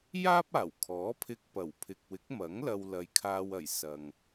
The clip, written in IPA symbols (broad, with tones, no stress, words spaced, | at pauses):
jaː˥p̚aː˨˩wkʰɔː˨˥pʰɪ˧k̚ pɐ˨˩wpʰɪ˨k̚wɪ˨˥k̚mɐ˨˥ŋ lɐ˧wlɐ˨jkʰaː˧wɐ˨˩j sɐ˨ŋ